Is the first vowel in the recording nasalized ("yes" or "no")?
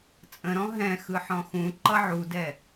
yes